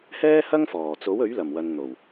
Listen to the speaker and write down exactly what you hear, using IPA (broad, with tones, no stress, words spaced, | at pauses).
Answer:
hɛː˥ hɐ˥ŋfɔː˨˩t͡so˨˥w ɵ˨˥ɥlɐ˨˩mwɐ˨n n̪o˨˩w